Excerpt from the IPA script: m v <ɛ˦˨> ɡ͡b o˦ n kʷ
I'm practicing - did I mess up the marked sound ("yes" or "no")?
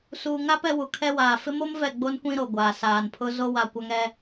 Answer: no